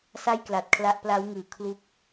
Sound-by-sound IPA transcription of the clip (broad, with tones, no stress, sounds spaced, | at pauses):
s a˥˩ j k l a˨˩ t̚ kʰ l a˦˥ ʔ p l a˦˥ w ŋ ɯː˨˩ kʰ l u˥˩ k̚